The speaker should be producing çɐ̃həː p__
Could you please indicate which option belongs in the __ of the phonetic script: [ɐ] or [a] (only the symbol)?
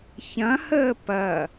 ɐ